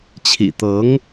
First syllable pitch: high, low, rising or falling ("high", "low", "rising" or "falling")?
low